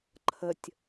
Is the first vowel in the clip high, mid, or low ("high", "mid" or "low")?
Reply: mid